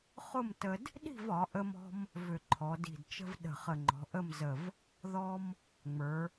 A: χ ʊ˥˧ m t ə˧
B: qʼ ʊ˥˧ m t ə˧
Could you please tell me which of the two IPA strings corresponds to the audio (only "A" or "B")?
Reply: A